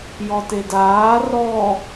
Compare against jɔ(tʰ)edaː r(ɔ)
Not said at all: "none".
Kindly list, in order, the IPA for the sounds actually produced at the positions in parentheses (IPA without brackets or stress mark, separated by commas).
t, ɔ